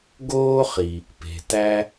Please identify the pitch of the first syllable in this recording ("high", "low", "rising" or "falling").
high